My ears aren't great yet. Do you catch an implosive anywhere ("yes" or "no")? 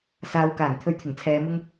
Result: no